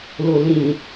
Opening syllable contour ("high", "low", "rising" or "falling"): low